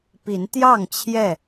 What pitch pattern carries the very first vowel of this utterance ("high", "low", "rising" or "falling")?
rising